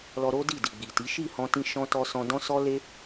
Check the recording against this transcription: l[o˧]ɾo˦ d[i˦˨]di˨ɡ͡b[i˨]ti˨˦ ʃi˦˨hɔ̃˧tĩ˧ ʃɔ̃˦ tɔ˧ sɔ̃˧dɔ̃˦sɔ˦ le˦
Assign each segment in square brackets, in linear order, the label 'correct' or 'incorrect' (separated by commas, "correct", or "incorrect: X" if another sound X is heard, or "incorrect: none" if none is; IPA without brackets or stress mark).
incorrect: ɔ˧, correct, correct